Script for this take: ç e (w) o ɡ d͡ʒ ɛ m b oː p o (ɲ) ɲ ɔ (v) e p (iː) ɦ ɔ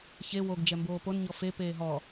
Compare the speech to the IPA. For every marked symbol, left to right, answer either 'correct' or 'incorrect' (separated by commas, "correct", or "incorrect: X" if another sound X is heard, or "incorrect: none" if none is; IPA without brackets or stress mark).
correct, incorrect: n, incorrect: f, incorrect: eː